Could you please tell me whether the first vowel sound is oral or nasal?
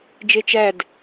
oral